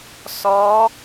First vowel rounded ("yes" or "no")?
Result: yes